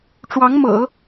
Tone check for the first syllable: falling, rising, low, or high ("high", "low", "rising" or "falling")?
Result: rising